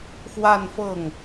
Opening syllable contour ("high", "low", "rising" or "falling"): falling